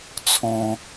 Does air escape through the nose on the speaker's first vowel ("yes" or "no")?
yes